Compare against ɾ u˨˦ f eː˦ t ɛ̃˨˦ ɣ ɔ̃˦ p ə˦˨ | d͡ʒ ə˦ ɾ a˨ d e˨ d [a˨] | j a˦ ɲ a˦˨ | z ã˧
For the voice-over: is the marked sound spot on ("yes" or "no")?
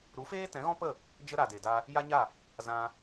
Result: no